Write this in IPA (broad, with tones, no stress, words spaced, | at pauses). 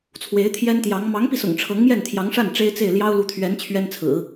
t͡sʰwe˧˥ɪ̯t̪ʰjɛ˥nt̪jɑ˧˥ŋ mɑ˧˥ŋpi˧sʊ̰˨˩ŋ ʈ͡ʂʰɤ˧˥ŋmjɛ˥˩nt̪ʰjɑ˧˥ŋʂa˥˩n ʈ͡ʂe˥ɪ̯t͡se˥˩ɪ̯ ljɑ˥ʊ̯lu˧˥t̪ʰɥɛ˧˥n t͡ɕʰɥɛ˥nt͡sʰɹ̩˨˩˦